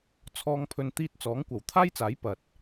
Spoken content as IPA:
t͡sʰ ɔː˨ ŋ pʰ ɵ˨ n t̪ iː˧ t̚ t͡s ɔː˨˥ ŋ kʷ ɐ˨˩ w t̪ʰ aː˥ j t͡s aː˨˥ j p ɐ˨ t̚

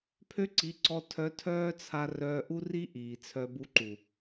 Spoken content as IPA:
pʰ ø˦ ǀ i˨˦ ǀ ɔ˧ tʰ œ˧ tʰ œː˦ t͡sʰ a˧ r œː˧ ʔ u˦ r i˦ ʔ iː˨ t͡sʰ œ˧ b u˧ ǃ u˨

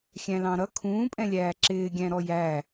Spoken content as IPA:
xʲ æ̃ l ɑ̃ ɾ ʌ kʰ ũː pʼ ɛ̃ lʲ æː ǁ ɪː ɡʲ æ̃ ɾ ɔ j æ

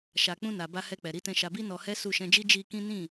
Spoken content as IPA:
ʃ a˨ k͡p ũ˧ n a˨ b a˧ h ɛ˧ k͡p ɛ˨ ɾ i˨˦ t ɛ̃˧ ʃ a˧ b i˦ n ɔ˧ h ɛ˦ s u˦˨ ʃ ɛ̃˧ d͡ʒ i˦ d͡ʒ i˧ k ĩ˦ n ĩ˦˨

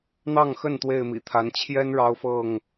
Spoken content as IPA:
n̪ ɑ˥˨ ŋ x ə˥˨ n t̪ w e˥˨ ɪ̯ m ḭ˨˩ t̪ʰ a˨˦ n t͡ɕʰ j ɛ˦ n ɻ ɑ˦ ʊ̯ f ɤ˥˨ ŋ

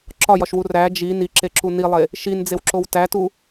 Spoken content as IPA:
ǁ ɒ j ɒ ʃ w u r æ d͡ʒ i n i ǁ e ǁ u n i lˠ e | ʃ i n d͡z e w ǁ o w t æ t u

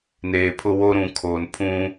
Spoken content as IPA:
n eː˨ pʰ ʊ˦ w o˦ ɾ ũ˨ kʰ oː˨ n pʰ ũ˦

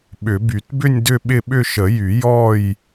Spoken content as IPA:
ɓ ʏ˨˩˦ b y˨˩˦ t b ʏ˥˧ nʲ d ʏ˥˧ ɓ ɪ˥˧ ɓ ʏ˥˧ ʃ ə˨˩˦ j y˨˩˦ j ɔ˥˧ j

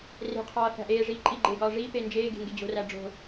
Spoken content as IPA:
r e̤ qʰ ɒː θ æ̤ ʔ eː ʐ iː ǃʼ i ɡ͡ǃ eː ɡ ɒː ʐ iː p e n d͡ʒ eː ɡ e̤ ŋ ɡ e d͡ʑ o̤ r æ ɖ͡ʐ o̤

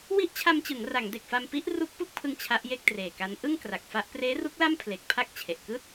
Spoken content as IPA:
w i˦˥ ʔ t͡ɕʰ a˧ m t͡ɕ ɯ˩˦ ŋ r a˩˦ ŋ d e˨˩ k̚ f a˧ m p i˦˥ ʔ r u˦˥ k̚ p u˥˩ k̚ pʰ ɯ˧ ŋ t͡ɕʰ a˦˥ ʔ j e˥˩ k̚ t r eː˨˩ k a˦˥ n ʔ ɯ˥˩ ŋ k r a˨˩ k̚ f a˦˥ ʔ p r eː˦˥ r u˦˥ k̚ l a˥˩ m pʰ l e˨˩ k̚ pʰ a˥˩ k̚ t͡ɕʰ e˨˩ ʔ k ɯː˥˩ t̚

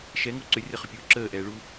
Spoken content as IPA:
ʃ ɛ ŋ o ǀ ʏ rʲ ɐ χ ʏ pʲ uː ǁ əː ʔ ɛː ɭ u

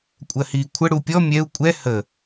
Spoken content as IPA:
kʷʼ ɜ h iː kʷʰ ə ɽ u pʲ ɔ mʲ ɛ u̯ kʷʼ ɛ h ə

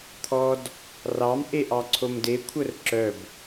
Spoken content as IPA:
t̪ʰ ɔ d | r ɑ m ʔ e ʔ ɑ ǀʰ o m d e kʷʰ œ r ǁ œ b

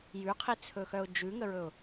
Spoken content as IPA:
j ʉ qʰ i t͡sʰ ɵ x œ ʊ̯ d͡ʒ ʉ ŋ ə ɹ ɵ ʊ̯

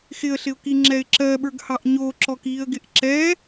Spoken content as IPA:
x ɪ ə̯ ɬ ɪ ʊ̯ k i ŋ͡ǁ ɛ ɪ̯ ǁ ɜ ɓ ə˞ ɡ h ɑ ʔ ɲ o ǁ ɔ k iː ə̯ ɡ ɪ ʔ ǁ ɛ

